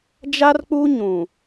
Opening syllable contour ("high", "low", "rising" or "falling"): high